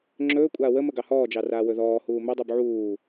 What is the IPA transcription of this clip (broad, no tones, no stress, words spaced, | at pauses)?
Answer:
ŋ͡ǁɵː kʷʼaːwəmə ɡɑhɔːd͡ʒɑ raːwɵðɔːhuː mɵdˤub ʕuː